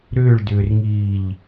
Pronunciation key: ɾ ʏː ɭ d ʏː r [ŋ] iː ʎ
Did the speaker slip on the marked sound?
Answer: no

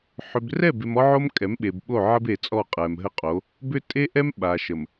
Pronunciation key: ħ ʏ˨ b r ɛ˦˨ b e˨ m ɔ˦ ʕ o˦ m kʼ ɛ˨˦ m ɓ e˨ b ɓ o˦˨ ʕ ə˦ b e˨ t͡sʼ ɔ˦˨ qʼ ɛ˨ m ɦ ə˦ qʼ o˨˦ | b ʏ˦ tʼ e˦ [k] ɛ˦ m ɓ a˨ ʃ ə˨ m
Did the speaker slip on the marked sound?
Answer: yes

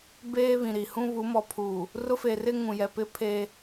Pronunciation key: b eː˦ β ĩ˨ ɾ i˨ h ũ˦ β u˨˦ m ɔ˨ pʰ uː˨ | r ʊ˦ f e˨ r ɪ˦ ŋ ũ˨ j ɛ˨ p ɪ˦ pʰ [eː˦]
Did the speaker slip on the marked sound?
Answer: no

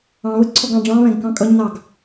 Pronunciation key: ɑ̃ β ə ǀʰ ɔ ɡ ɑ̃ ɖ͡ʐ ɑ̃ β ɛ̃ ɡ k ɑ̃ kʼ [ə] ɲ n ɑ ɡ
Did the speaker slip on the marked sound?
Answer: yes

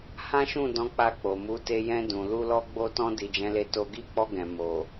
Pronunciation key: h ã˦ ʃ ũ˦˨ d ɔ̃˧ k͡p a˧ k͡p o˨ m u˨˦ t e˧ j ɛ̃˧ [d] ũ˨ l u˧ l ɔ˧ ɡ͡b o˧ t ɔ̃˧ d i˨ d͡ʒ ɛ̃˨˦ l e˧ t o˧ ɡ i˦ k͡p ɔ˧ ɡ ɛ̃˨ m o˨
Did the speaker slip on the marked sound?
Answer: no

